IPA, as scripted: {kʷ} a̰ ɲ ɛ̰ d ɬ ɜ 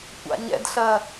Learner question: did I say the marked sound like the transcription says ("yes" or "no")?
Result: yes